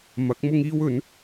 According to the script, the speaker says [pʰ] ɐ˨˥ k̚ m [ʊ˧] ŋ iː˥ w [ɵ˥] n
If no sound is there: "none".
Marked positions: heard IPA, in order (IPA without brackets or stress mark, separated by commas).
m, ʊ˥, ɵ˨˥